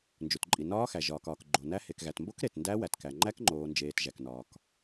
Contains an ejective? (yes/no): yes